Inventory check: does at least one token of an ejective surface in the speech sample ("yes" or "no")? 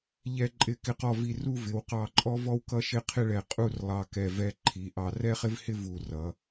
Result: yes